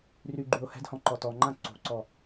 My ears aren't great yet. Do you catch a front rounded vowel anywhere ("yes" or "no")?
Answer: yes